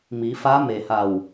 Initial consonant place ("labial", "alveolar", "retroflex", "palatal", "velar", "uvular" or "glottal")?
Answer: labial